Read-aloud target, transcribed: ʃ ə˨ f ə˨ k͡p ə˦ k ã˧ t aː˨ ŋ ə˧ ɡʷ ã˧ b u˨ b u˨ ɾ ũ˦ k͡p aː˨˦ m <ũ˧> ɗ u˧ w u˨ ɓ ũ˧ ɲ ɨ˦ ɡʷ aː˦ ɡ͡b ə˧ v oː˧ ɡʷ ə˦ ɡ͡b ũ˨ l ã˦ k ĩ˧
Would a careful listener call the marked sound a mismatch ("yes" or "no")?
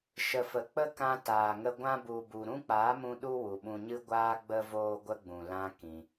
no